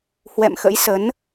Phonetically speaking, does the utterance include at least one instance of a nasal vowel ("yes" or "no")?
no